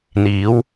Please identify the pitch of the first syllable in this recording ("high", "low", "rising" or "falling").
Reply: rising